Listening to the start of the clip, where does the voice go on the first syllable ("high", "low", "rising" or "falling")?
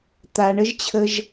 low